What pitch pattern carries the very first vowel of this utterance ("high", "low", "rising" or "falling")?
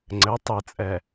rising